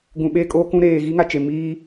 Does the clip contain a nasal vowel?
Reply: yes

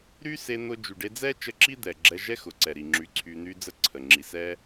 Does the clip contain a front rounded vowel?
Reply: yes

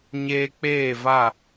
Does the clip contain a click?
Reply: no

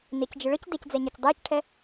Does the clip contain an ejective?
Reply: no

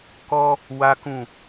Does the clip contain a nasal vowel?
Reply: yes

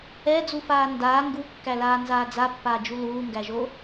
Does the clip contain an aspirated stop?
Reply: no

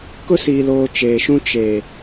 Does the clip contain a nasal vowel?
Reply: yes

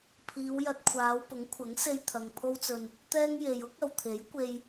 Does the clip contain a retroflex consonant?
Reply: no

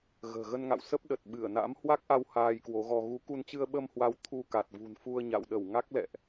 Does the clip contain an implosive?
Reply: yes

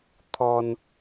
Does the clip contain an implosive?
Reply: no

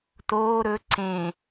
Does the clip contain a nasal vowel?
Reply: yes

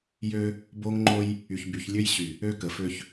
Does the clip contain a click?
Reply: yes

